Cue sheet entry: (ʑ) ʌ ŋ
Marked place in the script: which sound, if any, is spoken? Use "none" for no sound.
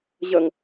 ʑ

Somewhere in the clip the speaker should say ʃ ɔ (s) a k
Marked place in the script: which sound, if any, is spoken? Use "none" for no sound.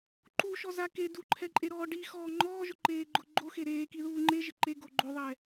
z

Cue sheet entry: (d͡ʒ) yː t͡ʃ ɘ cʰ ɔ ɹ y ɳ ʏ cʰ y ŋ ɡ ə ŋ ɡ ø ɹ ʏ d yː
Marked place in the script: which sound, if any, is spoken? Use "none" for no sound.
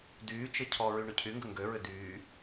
d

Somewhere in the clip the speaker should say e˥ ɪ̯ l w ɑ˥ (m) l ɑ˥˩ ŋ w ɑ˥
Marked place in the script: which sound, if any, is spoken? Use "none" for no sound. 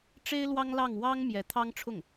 ŋ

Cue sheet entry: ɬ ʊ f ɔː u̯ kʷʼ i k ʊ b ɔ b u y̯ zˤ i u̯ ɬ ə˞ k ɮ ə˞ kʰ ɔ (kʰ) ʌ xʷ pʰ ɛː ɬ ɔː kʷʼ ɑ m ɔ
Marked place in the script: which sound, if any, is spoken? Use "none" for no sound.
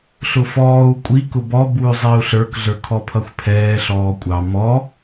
pʰ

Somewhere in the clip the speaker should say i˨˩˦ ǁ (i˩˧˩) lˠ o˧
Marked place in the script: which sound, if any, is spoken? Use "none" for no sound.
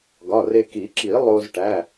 i˨˩˦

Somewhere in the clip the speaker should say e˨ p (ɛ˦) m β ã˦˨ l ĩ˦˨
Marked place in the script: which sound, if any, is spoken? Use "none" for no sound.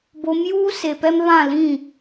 ɛ˦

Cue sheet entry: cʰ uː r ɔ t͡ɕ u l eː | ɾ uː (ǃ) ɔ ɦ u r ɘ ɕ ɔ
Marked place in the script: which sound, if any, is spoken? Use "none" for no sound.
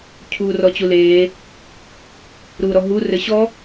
ɾ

